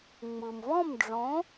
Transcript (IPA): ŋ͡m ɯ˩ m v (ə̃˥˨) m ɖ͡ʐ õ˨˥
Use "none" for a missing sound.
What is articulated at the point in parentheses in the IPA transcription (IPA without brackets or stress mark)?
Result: ɔ̃˥˨